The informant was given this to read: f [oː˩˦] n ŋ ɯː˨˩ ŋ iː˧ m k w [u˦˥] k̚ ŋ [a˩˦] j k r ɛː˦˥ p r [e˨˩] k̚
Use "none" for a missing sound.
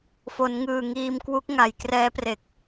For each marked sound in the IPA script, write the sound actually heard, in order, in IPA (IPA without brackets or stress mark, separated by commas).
o˩˦, u˦˥, a˩˦, e˨˩